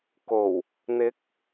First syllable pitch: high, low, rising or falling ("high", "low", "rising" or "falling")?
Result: low